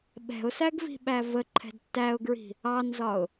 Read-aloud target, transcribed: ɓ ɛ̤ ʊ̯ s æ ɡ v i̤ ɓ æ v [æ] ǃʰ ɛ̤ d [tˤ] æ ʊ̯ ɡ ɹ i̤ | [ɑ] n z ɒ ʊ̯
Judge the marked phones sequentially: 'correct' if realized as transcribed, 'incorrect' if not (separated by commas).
incorrect, incorrect, correct